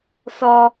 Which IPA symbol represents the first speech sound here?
s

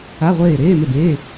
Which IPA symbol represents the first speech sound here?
a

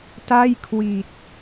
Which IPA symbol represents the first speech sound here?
t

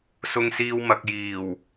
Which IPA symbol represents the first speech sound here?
s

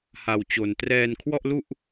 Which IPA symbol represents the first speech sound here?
h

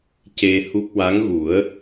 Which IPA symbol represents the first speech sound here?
c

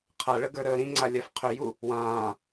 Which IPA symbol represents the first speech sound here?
qʰ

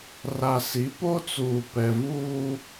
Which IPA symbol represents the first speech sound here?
r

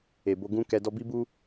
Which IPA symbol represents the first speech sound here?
e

